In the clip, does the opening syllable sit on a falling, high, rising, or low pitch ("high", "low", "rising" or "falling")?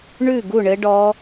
falling